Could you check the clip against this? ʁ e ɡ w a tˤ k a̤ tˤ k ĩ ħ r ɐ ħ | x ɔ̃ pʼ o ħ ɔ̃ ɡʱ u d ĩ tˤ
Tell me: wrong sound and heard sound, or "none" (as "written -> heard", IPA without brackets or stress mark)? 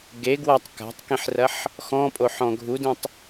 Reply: ʁ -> ɡ